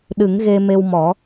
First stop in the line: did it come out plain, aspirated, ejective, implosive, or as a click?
implosive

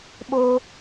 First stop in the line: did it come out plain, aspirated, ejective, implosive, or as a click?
implosive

